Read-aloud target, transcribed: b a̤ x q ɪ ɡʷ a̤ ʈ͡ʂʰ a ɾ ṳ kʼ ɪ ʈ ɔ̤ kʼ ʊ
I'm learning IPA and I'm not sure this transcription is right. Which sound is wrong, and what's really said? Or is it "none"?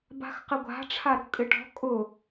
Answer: none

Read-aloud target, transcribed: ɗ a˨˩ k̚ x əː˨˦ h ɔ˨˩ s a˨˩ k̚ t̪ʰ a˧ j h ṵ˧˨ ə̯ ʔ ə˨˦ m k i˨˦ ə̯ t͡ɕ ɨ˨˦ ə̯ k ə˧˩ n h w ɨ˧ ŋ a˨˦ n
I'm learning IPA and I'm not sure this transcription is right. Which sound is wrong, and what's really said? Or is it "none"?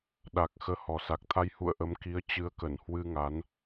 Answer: none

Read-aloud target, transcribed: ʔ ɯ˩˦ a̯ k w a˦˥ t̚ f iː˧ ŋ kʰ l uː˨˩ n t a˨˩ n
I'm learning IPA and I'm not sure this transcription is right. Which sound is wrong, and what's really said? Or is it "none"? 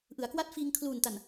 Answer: none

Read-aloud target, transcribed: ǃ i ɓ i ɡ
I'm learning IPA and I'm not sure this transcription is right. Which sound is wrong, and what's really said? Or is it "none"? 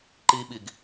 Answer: none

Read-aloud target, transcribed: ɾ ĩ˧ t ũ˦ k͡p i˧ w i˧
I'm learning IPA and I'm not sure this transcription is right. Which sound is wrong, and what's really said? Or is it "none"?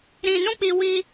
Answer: t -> n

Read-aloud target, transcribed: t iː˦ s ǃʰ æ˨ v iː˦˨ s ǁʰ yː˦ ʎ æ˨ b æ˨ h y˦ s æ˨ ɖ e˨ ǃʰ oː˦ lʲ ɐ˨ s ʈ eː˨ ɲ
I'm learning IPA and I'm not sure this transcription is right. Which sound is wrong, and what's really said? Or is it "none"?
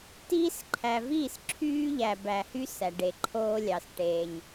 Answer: ɐ˨ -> ɑ˨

